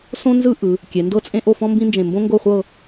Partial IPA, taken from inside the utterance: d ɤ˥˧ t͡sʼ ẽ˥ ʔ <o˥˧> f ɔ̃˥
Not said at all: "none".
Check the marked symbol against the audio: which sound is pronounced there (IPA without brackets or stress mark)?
o˥˧